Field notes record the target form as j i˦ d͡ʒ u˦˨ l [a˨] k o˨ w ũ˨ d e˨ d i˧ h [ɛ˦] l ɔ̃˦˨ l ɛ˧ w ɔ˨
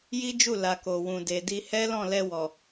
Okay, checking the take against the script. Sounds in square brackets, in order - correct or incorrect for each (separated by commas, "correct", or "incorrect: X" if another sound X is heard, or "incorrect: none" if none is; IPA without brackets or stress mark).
correct, correct